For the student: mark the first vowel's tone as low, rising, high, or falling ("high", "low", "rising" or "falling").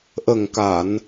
low